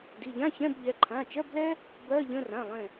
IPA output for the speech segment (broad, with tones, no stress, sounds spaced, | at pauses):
d i˩˧˩ ʎ ã˧˥˧ ç ɛ̃˧˥˧ b ʎ ɛ˩˧˩ ǃʰ ã˩˧˩ t͡ʃ ɜ˧˥˧ b l ɛ˥ | b ɜ˧˥˧ ʎ ə̃˧˥˧ r ã˩˧˩ lˠ ɛ̃˧˩